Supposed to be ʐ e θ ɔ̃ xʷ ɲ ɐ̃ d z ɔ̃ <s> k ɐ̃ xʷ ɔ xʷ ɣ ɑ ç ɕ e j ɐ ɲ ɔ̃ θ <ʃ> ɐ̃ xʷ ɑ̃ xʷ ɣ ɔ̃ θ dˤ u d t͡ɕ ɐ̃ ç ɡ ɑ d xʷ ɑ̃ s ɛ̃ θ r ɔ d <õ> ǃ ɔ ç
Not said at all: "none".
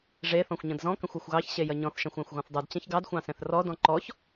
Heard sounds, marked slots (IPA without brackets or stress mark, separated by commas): none, ʃ, ɔ̃